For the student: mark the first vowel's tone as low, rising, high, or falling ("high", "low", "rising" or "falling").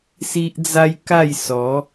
high